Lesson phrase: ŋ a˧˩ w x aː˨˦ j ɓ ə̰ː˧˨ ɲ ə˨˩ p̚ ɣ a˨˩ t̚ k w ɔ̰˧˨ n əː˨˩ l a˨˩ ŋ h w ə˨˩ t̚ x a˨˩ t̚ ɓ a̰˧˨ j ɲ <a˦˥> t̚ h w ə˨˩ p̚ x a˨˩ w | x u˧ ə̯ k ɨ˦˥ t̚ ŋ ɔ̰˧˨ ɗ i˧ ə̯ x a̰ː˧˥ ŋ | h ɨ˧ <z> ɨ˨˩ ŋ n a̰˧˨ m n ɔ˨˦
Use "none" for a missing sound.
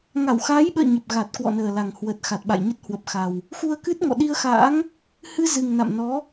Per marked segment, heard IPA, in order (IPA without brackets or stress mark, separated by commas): ə˦˥, z